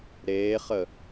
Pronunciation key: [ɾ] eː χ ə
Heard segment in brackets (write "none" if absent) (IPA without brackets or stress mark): ɾ